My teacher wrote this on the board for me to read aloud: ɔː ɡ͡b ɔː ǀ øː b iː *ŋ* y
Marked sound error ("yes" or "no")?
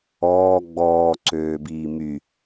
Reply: yes